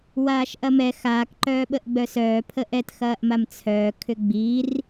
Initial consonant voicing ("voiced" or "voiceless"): voiced